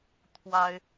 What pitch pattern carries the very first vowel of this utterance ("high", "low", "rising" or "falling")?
high